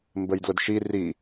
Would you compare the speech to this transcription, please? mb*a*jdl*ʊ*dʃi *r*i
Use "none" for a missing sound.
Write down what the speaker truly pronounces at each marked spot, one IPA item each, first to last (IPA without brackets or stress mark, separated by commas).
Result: ə, ʊ, r